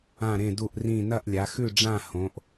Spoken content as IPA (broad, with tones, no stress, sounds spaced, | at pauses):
ã˥˨ ɾ ẽ˥˨ d u˥˨ ʔ r ĩ˥˨ n ɐ˥˨ ʔ lʲ a˨˦ x ʉ˥˨ ɖ͡ʐ ã˥˨ h õ˨˦ ʔ